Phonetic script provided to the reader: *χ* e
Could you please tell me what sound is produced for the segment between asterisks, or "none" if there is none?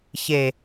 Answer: ç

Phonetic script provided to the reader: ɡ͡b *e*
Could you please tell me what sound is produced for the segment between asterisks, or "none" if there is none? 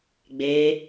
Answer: e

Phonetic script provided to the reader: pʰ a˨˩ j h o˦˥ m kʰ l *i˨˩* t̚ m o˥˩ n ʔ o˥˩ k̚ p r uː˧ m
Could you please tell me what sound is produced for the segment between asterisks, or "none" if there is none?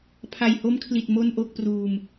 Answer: i˨˩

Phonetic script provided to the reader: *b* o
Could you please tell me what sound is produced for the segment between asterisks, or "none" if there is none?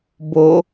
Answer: b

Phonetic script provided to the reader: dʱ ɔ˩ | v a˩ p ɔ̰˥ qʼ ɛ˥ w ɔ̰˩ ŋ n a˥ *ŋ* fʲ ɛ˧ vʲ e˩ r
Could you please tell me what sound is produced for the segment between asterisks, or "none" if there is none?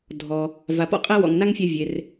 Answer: ŋ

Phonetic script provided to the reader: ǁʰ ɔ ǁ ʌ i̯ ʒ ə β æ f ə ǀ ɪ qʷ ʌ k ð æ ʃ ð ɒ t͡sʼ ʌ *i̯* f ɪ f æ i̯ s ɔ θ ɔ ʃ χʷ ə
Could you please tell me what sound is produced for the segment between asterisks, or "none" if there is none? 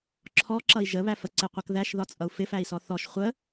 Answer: u̯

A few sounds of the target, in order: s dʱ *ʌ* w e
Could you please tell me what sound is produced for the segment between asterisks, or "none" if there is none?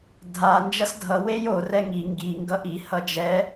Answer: ʌ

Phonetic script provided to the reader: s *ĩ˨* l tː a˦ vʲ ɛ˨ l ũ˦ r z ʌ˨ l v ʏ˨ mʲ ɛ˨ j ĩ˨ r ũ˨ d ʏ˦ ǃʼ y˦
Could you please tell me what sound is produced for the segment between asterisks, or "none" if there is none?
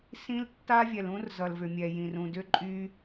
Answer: ĩ˦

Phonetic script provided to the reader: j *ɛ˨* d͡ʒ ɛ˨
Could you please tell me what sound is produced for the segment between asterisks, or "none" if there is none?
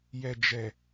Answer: ɛ˨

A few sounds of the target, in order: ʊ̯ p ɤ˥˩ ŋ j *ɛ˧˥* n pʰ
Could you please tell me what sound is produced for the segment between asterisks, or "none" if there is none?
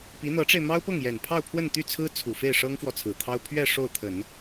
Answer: ɛ˨˩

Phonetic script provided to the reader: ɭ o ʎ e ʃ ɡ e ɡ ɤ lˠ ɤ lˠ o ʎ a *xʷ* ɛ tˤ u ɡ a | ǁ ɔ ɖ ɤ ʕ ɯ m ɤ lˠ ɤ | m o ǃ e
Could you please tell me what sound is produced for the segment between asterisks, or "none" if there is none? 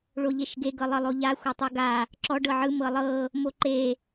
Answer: xʷ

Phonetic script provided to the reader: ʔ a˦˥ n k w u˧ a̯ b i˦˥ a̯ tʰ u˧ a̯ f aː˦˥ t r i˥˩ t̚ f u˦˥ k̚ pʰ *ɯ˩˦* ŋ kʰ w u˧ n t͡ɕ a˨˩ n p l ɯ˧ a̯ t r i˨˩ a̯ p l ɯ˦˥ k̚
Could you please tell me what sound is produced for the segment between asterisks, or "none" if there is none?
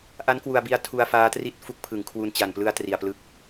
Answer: ɯ˩˦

